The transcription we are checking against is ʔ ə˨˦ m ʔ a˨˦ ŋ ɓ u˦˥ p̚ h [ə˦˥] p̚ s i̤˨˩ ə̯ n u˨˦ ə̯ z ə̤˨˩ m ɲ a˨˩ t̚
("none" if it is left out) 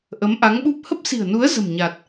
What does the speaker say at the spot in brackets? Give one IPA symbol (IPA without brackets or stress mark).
ə˦˥